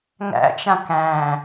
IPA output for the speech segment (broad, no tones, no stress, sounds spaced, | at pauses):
ŋ æ̰ t͡ʃ ã k æ̃